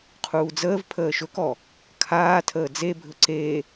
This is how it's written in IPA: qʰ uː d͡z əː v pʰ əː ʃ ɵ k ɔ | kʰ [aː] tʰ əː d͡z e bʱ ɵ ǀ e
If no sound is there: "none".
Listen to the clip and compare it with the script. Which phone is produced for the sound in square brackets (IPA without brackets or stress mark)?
aː